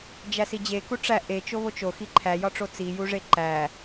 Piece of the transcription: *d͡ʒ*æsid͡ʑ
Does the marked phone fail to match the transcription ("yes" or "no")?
no